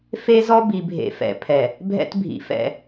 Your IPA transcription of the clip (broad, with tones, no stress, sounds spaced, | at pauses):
f e˦ z ɔ˦ b i˨ bʱ ḛ˨ f ɛ̰˨ pʰ ɛ˨ | bʱ ɛ̰˦ t bʱ ḭ˨ f ɛ̰˦˨